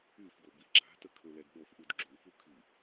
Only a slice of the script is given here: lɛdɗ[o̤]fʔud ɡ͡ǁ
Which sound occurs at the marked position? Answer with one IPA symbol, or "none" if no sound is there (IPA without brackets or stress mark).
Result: o